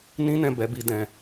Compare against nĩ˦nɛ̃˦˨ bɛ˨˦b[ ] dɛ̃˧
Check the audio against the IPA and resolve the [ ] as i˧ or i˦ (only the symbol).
i˧